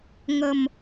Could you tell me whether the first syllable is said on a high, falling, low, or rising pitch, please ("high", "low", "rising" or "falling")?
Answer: low